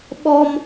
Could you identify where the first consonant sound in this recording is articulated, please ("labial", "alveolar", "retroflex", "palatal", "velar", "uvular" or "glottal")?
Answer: labial